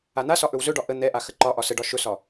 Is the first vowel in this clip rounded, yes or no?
no